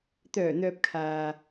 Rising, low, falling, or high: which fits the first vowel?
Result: low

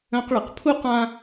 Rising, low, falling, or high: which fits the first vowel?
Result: high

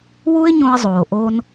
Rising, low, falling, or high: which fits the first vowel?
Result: high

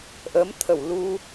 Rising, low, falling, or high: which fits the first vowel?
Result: rising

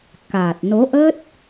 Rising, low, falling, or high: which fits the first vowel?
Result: low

